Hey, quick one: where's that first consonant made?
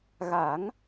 velum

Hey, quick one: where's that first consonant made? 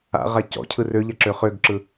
uvula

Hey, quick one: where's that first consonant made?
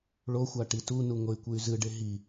retroflex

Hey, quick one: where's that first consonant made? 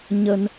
palate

